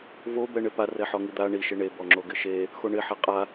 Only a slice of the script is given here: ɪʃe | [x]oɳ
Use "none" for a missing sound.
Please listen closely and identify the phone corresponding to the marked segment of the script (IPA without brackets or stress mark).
x